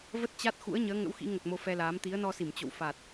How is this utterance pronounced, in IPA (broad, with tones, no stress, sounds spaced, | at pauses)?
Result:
v ə˦˥ t̚ t͡ɕ a˦˥ t̚ x ṵ˧˥ ə̯ ɲ əː˨˦ ŋ ə̰˧˥ w x ḭ˧˥ ŋ ə˨˩ t̚ m o˧ f ɛ˧ l aː˨˦ m t̪ i˨˦ ə̯ n ɔ˧ s i˧˩ m t͡ɕ o̰˧˨ w f a˨˩ t̚